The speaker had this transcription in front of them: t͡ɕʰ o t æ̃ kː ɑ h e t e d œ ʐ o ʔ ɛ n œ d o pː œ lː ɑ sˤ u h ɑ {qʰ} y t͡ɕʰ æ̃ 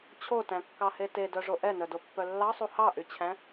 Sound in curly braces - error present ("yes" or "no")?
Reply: yes